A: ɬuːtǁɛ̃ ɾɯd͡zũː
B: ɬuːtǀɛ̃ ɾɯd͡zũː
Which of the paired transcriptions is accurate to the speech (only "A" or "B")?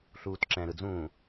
A